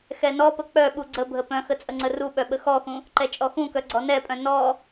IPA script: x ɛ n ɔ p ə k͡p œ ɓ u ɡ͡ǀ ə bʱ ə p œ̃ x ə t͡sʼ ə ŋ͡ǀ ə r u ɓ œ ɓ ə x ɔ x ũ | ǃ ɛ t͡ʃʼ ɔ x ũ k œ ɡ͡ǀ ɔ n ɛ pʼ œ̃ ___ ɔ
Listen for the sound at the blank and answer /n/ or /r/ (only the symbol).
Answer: n